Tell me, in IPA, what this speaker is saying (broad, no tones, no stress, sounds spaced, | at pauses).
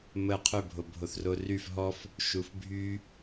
m ə qʰ ʏ bʱ o bʱ o θ r o r y f ɦ ɔ f | ʃ u f bʱ y